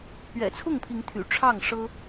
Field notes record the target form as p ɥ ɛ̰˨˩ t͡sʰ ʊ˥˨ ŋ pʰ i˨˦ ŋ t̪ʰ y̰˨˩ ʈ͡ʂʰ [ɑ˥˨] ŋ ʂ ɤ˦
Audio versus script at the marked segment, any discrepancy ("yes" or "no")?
no